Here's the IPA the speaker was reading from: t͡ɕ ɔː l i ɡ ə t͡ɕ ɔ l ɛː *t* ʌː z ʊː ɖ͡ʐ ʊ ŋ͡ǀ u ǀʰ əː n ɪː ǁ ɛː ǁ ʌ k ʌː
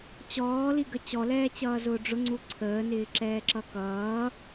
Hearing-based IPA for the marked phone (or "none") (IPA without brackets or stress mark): t͡ɕ